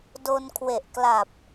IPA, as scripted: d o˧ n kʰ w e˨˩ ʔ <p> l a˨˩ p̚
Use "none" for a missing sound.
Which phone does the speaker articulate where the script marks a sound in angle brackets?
k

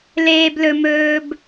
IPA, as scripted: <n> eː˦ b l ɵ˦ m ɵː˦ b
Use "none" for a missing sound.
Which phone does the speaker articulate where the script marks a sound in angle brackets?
l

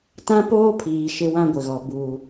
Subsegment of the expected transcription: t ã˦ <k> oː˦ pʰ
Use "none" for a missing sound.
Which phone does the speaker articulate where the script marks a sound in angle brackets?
p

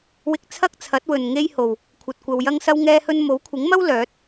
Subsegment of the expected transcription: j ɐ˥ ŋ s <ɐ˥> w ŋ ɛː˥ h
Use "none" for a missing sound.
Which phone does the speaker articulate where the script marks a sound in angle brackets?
ɐ˥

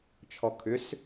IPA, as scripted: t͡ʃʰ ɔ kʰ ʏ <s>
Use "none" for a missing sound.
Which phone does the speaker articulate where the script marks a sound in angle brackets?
s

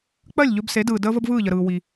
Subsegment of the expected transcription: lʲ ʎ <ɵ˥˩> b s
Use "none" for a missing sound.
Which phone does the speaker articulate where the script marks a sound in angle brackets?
ɵ˧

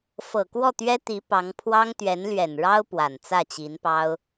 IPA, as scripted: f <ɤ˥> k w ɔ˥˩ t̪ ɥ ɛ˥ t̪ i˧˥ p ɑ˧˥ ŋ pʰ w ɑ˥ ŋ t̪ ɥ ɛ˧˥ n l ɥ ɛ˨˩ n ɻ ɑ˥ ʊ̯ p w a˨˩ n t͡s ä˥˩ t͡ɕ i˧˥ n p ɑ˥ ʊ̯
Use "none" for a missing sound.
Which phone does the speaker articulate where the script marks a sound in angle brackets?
ɤ˨˩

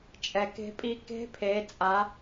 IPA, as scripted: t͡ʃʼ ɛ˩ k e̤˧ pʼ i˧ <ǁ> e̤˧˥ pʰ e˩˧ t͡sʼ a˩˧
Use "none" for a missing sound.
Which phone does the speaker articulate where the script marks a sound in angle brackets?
k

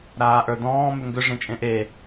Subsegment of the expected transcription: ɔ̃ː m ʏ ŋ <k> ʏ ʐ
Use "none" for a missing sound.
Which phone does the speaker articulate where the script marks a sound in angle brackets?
ɡ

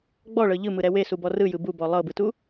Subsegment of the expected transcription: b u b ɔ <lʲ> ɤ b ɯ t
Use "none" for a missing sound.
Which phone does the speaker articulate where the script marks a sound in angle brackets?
lˠ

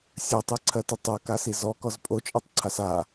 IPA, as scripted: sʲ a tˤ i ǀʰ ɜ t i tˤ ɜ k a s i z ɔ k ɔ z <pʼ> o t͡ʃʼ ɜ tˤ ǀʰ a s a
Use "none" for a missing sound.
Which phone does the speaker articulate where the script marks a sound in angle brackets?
pʼ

